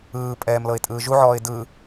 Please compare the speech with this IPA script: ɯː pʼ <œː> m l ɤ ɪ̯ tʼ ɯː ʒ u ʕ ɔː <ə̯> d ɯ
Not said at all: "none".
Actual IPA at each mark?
ɛː, ɪ̯

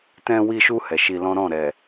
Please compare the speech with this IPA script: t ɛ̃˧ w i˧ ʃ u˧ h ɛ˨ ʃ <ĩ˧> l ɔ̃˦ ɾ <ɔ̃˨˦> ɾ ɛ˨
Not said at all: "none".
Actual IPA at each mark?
i˧, ɔ̃˦˨

